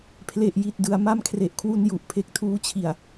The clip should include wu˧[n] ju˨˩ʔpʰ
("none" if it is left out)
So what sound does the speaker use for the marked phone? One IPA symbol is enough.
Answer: n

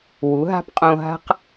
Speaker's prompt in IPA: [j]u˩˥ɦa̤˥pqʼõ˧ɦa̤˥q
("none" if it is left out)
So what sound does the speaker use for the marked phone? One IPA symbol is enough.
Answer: w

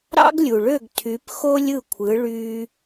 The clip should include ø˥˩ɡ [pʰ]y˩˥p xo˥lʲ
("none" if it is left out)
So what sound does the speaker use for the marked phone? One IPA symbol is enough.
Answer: tʰ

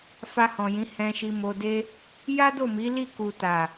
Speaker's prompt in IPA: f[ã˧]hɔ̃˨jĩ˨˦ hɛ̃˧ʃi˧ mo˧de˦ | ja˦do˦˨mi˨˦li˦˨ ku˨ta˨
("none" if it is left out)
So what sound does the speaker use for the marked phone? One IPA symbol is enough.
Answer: a˧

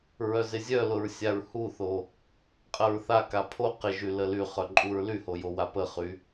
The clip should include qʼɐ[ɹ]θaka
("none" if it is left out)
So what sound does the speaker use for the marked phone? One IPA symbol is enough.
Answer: ɹ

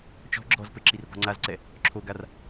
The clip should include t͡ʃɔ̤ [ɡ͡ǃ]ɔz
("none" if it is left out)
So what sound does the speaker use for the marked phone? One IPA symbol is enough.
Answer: ɡ͡ǁ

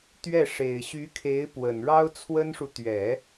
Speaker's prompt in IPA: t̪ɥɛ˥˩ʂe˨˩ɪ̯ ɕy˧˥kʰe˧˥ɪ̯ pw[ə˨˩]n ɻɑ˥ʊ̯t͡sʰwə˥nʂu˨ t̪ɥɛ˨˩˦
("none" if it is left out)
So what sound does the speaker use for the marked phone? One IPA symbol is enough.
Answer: ə˨˩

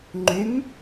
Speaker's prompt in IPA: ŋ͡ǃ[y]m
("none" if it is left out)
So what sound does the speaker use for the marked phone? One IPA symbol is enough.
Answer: y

